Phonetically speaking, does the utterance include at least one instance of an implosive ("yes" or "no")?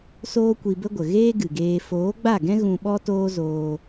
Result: yes